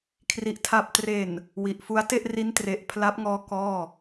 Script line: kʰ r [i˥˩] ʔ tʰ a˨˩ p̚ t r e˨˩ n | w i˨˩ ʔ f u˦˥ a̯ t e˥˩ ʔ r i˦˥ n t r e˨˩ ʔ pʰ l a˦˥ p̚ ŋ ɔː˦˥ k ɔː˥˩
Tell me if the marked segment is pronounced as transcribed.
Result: no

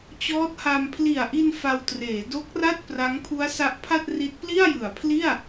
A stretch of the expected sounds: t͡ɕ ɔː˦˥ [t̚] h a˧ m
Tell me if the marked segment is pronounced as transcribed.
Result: yes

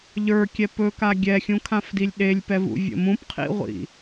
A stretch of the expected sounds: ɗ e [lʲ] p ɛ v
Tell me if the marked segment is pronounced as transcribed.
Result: yes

